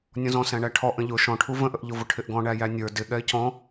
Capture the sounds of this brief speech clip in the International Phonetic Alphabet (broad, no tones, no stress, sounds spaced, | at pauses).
nʲ ɔ̃ z ɔ̃ s æ̃ ɳ æ ʈʰ ɔ ʔ ə̃ ʎ ʊ ʃ ɔ̃ ʈʰ u v ə̃ ʔ ə ʔ ʎ ʊ v ʊ ʈʰ ɪ ʔ ɡ ɔ̃ ɳ æ j æ nʲ ə˞ d ɪ ɠ ɛ ɪ̯ c ɔ̃